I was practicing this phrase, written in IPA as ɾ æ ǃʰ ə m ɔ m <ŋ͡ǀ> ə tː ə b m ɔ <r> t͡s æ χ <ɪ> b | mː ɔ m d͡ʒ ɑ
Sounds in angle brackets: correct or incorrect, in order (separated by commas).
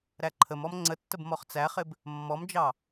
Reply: correct, incorrect, correct